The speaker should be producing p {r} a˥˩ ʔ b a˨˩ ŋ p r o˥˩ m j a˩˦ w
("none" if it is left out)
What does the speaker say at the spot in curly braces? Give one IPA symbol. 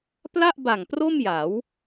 l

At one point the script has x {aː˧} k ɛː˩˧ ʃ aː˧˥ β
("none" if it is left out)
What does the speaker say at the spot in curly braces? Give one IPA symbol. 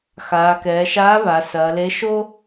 aː˩˧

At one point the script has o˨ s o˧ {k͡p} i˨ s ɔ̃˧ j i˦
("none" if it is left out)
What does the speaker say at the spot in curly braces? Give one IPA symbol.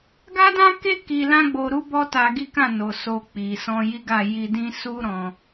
k͡p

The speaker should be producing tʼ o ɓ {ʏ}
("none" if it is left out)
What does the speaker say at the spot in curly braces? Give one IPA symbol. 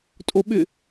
ʏ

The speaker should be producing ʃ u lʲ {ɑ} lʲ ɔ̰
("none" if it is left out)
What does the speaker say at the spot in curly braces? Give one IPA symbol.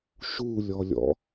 ɔ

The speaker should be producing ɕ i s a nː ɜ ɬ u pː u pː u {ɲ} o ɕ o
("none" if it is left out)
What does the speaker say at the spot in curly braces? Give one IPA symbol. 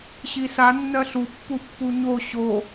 ɲ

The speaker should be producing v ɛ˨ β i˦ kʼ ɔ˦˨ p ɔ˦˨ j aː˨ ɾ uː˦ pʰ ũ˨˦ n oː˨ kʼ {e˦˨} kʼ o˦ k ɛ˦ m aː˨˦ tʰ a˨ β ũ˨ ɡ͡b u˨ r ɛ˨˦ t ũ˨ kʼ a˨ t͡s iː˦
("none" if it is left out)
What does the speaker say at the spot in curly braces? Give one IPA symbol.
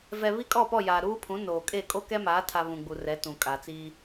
e˦˨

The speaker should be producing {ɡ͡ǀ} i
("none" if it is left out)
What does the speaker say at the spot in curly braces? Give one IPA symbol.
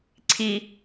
ǀʰ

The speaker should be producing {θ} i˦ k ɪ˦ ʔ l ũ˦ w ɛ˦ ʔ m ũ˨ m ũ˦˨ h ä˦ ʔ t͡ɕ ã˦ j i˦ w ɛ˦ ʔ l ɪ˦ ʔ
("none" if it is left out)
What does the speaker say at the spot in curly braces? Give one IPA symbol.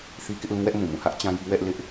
θ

